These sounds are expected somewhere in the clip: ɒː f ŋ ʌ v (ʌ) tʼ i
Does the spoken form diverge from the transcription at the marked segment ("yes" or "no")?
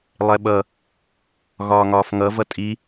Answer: no